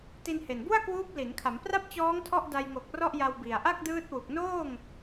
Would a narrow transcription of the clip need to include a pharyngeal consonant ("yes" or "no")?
no